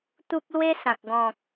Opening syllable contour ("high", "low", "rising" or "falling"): high